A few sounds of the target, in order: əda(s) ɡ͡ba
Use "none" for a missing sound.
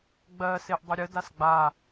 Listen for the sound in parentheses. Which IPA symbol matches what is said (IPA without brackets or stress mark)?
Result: s